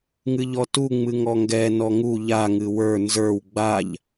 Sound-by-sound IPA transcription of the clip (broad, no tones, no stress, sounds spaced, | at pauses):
ŋ ɨ ʎ ɔ t u ŋ͡m ɨ ŋ ɔ ŋ ɡ ɛ n ɔ ŋ u ʎ a ŋ ɨ w ə˞ n z ə˞ w ɡ͡b a ʎ